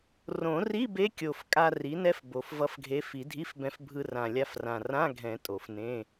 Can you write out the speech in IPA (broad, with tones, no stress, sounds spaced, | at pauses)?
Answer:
r õ˨˩˦ r i˧˥˧ b e˧˥ kʲ o˨˩ f kʼ a˧ r i˩˥ n ɛ˧˥ f b o˨˩ f v ʌ˧˥ f ɡʱ e˧˥ f i˨˩˦ dʱ i˧˥˧ f b ɛ̃˧ f bʱ ɯ˧ r ã˨˩ lʲ a˧ f r ã˨˩ r ã˧˥˧ ɡʱ ɛ̃˨˩˦ tʼ o˨˩˦ f n ẽ˧˥˧